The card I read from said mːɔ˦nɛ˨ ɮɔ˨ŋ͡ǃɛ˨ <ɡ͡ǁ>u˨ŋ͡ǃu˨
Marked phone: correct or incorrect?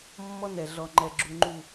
correct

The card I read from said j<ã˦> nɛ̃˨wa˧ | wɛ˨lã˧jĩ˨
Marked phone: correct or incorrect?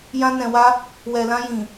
incorrect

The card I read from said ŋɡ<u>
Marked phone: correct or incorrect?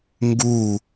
correct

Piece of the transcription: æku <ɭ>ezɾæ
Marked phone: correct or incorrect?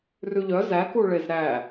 correct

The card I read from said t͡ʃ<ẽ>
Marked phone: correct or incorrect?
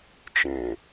correct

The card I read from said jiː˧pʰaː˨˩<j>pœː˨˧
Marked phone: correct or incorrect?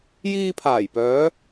correct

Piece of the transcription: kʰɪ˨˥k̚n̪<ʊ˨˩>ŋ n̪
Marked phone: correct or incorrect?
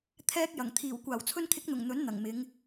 correct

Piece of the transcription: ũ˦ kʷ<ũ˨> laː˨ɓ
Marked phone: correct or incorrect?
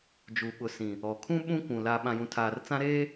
correct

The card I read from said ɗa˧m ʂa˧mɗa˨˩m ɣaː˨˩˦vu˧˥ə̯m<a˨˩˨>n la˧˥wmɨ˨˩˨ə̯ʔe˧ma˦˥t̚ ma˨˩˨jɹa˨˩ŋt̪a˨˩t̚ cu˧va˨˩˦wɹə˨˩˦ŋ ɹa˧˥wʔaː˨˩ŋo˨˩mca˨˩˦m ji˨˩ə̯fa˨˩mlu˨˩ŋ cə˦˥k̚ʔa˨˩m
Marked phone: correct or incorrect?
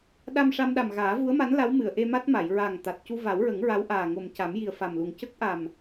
incorrect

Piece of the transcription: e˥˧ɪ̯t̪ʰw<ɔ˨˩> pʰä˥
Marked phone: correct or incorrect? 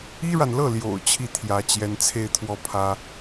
incorrect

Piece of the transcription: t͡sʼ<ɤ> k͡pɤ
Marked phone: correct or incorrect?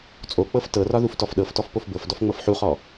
incorrect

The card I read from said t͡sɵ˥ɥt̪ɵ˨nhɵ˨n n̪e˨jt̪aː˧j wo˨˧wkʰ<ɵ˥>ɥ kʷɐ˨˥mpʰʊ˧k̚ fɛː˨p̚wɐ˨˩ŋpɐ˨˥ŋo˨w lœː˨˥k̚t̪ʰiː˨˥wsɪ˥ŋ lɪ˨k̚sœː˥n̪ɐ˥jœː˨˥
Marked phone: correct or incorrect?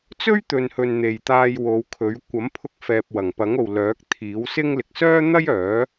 incorrect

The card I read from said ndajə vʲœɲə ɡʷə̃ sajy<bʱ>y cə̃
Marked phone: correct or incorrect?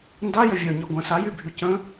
correct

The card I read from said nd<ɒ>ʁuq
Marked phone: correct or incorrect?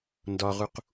correct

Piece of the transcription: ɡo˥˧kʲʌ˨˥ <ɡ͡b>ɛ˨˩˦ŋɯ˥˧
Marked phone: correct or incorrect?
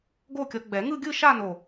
correct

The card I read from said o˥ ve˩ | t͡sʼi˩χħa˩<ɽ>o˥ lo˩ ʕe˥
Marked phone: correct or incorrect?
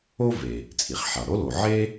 correct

